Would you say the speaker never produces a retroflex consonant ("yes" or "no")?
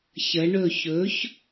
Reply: no